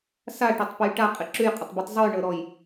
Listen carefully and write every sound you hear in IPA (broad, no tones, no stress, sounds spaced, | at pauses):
s a ʈ ɔ tˤ p ə j ʈ a qʼ ɪ ǁ ʉ j qʼ ɪ tˤ b ʉ tˤ zˤ ʉ j ɳ ɤ ɾ ɔ j